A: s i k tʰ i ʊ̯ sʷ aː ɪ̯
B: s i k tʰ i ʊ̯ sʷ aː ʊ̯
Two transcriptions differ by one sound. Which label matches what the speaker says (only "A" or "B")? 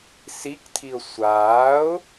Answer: B